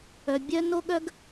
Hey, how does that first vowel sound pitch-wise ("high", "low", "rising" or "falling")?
low